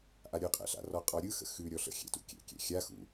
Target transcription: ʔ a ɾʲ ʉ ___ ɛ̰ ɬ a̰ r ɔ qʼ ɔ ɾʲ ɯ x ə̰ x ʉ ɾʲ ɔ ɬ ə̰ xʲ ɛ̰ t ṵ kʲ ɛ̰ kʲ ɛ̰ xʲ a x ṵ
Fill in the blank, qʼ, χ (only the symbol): qʼ